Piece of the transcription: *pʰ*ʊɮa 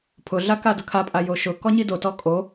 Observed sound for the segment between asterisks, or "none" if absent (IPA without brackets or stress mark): pʰ